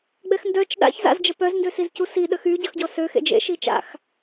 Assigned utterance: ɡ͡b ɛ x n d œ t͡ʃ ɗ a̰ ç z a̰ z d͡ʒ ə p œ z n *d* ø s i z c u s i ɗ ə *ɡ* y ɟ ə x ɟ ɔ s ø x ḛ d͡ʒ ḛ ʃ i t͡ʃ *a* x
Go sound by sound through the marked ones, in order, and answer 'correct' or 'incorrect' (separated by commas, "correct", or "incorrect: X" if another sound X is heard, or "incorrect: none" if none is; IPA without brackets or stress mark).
correct, incorrect: x, incorrect: a̰